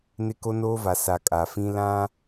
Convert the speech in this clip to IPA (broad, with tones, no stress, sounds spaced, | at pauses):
n ɪ˦ k o˦ n oː˦ v a˨ s a˨ kʼ a˨ f ĩ˦ l ã˦